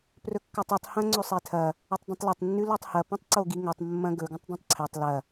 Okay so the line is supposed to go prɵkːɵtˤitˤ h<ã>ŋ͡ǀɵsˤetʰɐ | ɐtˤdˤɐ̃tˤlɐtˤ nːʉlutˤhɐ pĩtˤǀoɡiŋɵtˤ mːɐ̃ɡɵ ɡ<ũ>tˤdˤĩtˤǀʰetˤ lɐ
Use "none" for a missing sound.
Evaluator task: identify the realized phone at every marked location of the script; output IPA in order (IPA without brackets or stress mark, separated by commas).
ɐ̃, ũ